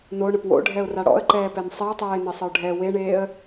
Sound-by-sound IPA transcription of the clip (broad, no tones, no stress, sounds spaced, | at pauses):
n o ɳ ə p w o̰ ɖʱ ɛ ʊ̯ r a ɽ ɔ̰ ə̯ ǃ ɛː p ɛ n sˤ e ə̯ tˤ ɛː ɪ̯ n e sˤ ə ʊ̯ ɖʱ ɛ w e ɳ eː ə̯